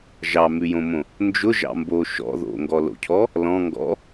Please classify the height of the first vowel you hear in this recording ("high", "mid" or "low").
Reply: low